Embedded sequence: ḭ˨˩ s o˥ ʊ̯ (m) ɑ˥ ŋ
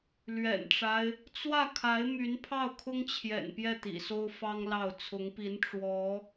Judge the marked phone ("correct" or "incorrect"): incorrect